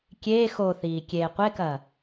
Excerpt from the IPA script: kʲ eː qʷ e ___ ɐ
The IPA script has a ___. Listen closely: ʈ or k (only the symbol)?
k